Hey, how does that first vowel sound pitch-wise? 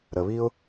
low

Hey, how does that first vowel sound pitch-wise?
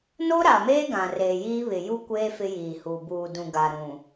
high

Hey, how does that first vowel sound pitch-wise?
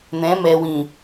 rising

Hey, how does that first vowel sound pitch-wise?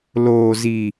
low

